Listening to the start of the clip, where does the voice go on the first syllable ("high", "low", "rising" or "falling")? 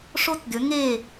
high